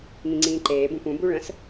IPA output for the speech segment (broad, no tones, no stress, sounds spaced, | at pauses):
ŋ ĩ ŋ͡ǀ ĩː ǃ eː b ũ p ũ b u ɭ ə̃ s